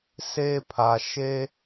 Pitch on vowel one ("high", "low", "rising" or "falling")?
high